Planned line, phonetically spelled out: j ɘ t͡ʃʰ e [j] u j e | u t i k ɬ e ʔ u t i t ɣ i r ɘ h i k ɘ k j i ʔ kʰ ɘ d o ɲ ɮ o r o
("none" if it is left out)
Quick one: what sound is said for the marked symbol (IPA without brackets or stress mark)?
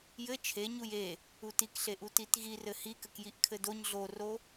ɲ